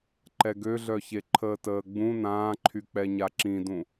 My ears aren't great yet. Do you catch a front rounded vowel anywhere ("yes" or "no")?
yes